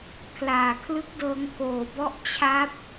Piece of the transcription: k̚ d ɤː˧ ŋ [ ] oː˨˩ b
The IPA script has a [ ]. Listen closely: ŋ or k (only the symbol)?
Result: k